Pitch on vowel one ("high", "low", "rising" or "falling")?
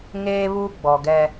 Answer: high